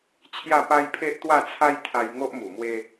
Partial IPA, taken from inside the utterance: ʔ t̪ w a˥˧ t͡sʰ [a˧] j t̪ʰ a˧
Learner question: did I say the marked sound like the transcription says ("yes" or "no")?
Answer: no